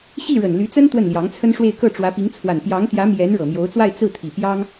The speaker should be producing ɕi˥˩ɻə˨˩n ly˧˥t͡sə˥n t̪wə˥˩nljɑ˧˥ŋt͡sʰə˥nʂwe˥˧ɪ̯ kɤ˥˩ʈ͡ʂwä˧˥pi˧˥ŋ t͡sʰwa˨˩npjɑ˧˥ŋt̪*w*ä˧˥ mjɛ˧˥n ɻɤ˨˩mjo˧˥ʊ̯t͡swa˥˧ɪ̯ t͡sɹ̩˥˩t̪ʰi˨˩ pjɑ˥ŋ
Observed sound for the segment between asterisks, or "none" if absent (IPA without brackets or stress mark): j